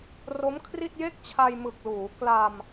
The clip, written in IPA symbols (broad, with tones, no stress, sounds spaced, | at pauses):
r o˦˥ m kʰ r i˥˩ t̚ j e˥˩ k̚ t͡ɕʰ a˧ j m ɯ˨˩ k̚ l uː˩˦ k l a˧ m